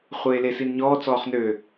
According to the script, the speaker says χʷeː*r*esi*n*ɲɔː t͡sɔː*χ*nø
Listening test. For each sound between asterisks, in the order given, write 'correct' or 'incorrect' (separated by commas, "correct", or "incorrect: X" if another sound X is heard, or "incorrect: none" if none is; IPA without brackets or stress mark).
incorrect: l, correct, correct